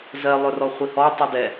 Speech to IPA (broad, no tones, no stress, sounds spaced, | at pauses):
z ɜ lˠ ɵ r ɔ χʷ i h ɔ tˤ i d ɛ